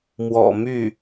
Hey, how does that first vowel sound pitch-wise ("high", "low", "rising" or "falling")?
low